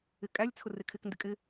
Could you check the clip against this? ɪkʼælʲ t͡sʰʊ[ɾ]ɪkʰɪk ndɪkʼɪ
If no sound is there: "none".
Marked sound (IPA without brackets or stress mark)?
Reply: r